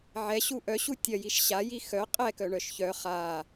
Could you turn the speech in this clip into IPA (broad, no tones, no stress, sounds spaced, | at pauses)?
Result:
ʕ ɛ ɕ u ʔ œ ɕ u tʲ ɐ j i ʃ ɕ a j i x œ qʼ ɛ k œ ɳ œ ʃ ç œ χ a